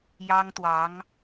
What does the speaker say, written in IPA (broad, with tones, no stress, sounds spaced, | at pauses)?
j ɑ˥ ŋ t̪ w ɑ˧˥ ŋ